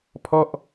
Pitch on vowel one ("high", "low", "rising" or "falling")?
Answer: falling